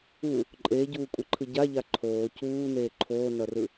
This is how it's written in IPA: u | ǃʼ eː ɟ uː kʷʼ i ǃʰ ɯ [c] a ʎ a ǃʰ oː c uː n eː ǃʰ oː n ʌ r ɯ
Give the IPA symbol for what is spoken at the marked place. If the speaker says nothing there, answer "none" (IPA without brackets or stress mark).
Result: ɟ